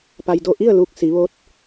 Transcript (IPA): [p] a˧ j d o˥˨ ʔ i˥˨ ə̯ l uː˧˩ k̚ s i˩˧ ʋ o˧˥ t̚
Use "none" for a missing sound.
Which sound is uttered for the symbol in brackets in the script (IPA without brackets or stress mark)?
p